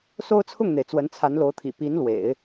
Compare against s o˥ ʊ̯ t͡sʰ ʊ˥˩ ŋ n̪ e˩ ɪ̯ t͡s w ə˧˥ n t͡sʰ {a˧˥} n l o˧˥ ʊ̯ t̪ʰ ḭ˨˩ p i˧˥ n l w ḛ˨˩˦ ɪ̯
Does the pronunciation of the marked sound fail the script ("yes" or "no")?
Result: no